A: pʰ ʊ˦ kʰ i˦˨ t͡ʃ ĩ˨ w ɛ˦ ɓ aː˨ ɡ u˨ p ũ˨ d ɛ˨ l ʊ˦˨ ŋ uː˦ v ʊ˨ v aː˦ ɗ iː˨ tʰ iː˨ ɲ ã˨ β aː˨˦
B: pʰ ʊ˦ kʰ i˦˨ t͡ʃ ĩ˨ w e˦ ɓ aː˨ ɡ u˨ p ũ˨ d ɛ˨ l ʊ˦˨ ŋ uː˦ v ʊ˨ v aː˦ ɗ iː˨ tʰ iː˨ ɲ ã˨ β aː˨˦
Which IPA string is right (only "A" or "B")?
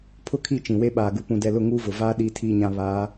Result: B